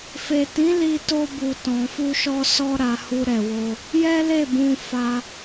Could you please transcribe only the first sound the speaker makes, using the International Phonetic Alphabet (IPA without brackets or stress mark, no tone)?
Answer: f